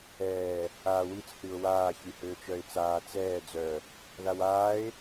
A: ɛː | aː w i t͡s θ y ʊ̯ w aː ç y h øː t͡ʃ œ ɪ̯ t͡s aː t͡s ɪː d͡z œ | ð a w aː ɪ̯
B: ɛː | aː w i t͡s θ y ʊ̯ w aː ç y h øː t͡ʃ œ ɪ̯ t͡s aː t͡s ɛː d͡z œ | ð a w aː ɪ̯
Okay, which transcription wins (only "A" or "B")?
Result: B